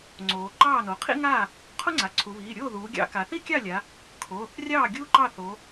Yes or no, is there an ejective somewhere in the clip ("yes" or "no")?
no